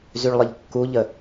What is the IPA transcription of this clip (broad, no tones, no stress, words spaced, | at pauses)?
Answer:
zyɭlˠəʎkːuʎə